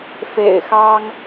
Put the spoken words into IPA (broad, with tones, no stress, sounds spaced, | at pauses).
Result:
f ḛ˨˩ ɪ̯ x ɑ˦ ŋ